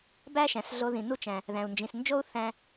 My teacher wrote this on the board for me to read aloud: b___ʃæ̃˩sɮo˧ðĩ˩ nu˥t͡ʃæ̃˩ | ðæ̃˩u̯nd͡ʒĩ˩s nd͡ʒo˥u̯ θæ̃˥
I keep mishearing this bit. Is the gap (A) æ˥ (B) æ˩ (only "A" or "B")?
A